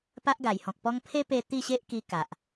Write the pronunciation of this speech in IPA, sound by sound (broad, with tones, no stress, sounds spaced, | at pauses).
p a˦ ʔ ɡ a˨˩ j h ɔ̃˨ k̚ p ɔ˦ ŋ pʰ e˦ p e˧ t̪ i˥˧ ɕ e˦ ʔ k i˧ k a˨ ʔ